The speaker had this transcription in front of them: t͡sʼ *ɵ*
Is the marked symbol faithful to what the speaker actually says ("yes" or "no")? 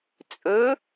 yes